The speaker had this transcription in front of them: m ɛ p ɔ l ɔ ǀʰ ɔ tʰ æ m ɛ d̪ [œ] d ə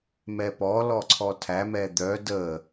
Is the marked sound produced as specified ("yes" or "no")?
yes